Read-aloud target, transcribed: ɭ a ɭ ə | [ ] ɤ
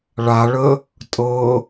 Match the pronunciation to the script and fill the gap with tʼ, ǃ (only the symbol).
tʼ